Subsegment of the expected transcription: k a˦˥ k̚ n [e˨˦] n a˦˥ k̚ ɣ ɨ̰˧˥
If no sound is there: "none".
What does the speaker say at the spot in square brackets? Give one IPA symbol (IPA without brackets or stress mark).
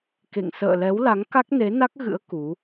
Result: e˨˦